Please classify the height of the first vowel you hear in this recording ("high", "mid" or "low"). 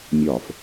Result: low